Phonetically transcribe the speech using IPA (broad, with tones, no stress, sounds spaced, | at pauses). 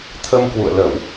t̪ʰ ə˧ m k w ṵ˧˨ ə̯ l ə˧˩˨ w